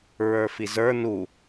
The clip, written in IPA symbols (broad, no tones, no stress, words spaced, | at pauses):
ɹə˞fizə˞ nu